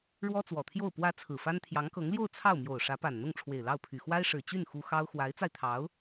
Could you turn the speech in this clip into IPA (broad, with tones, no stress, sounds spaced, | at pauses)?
ɻ w ɔ˥ t͡s w ɔ˨˩ t̪ʰ j o˥˩ ʊ̯ p w ä˧˥ t͡sʰ ɹ̩˨˩ f a˥ n t̪ʰ j ɑ˧˥ ŋ k ɤ˧˥ ŋ l j o˥˧ ʊ̯ t͡sʰ ɑ˥˩ ʊ̯ m j o˨˩ ʊ̯ ʂ ä˧˥ p a˨˩ n n̪ ʊ˥˩ ŋ ʈ͡ʂʰ w e˨˩ ɪ̯ l ɑ˥˩ ʊ̯ pʰ y˨˩ x w a˥ ɪ̯ ʂ ɻ̩˨˩ t͡ɕ y˥˩ n x u˥ x ɑ˥ ʊ̯ x w a˧˥ ɪ̯ t͡s a˧ ɪ̯ t̪ʰ ɑ˧˥ ʊ̯